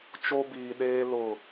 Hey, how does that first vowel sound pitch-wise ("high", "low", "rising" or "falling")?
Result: high